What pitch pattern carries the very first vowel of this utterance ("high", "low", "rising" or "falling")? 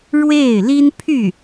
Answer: falling